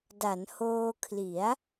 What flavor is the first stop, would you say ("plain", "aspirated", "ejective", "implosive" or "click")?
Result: plain